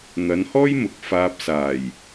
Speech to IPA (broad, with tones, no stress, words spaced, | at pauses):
n̪ɐ˨˧nhɔː˥jmʊ˨˥k̚ faː˧p̚saː˨˩j